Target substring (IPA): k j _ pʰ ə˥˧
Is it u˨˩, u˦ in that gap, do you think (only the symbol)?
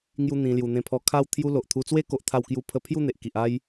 u˦